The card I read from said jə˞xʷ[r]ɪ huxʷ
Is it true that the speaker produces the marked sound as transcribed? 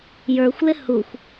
no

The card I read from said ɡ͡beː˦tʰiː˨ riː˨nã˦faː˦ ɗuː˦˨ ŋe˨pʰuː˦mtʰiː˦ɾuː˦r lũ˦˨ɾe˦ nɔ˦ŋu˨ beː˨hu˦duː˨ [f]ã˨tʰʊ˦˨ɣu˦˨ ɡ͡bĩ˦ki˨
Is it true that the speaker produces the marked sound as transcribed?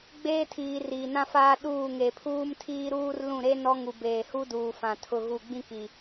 yes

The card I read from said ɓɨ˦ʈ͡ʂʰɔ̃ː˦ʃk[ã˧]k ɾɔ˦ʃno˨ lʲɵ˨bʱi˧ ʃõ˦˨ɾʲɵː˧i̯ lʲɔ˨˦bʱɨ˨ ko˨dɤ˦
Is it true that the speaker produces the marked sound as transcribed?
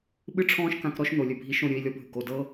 yes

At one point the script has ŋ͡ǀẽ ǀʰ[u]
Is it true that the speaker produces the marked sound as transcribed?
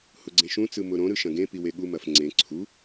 yes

